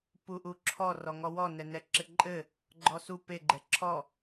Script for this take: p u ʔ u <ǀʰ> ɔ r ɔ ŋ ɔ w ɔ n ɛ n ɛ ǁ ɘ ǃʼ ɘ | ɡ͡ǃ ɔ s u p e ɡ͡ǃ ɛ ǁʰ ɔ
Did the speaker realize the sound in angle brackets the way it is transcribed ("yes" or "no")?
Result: no